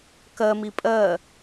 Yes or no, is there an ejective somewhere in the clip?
yes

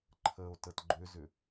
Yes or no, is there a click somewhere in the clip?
yes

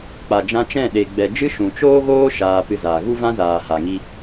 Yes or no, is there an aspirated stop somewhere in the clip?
no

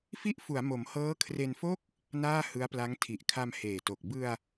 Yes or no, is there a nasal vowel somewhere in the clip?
no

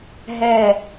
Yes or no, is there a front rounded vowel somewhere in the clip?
no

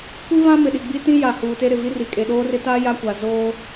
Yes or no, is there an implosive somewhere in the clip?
yes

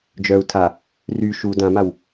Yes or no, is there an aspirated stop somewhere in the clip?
yes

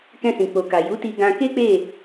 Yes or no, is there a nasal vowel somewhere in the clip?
yes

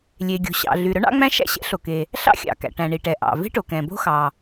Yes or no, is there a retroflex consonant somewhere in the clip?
yes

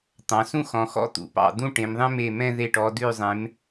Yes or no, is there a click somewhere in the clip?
no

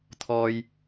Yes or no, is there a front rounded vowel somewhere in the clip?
no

